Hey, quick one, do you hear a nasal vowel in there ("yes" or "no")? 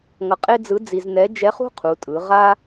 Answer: no